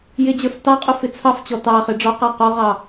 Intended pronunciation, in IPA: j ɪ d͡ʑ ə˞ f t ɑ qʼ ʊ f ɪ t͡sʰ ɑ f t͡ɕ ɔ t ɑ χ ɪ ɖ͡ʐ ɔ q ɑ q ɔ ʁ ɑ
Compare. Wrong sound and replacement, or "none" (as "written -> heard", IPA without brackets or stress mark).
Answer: none